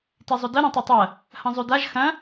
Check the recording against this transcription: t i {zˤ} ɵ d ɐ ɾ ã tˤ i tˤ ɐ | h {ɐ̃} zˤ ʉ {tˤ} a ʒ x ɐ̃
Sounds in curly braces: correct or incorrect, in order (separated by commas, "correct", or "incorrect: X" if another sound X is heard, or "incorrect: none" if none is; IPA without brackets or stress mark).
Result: correct, correct, incorrect: d